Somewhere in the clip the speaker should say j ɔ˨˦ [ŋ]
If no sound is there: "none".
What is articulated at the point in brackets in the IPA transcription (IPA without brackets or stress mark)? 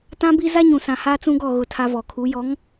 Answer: ŋ